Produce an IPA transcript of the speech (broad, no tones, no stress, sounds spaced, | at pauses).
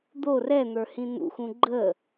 d̪ o r ɛ n̪ ə˞ h ĩ n̪ ṵ x ũ ɡ͡ǃ ə